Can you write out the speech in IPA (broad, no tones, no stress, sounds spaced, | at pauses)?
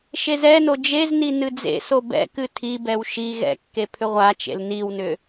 ʃ e z ɛ n o d͡ʒ e z n i n ɨ d͡z ḛ s o b ɛ̰ k ɨ tʰ i b ɛ w ʃ i ɣ ɛ̰ kː e pʰ ʏ ʁʷ a t͡ʃ ḛ l n i w n ʏ